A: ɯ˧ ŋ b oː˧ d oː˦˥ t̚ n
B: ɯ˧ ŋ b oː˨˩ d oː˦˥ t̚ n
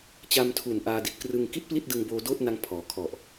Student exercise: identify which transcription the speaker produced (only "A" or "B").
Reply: A